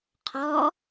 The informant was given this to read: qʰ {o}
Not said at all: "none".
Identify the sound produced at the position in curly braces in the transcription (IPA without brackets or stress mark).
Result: ɔ